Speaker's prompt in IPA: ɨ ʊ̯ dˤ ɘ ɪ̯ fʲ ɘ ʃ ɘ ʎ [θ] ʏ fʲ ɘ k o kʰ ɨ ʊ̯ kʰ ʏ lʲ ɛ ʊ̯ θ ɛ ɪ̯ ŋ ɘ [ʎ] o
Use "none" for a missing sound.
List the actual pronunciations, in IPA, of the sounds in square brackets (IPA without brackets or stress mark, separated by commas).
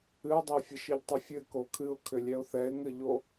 tˤ, ʎ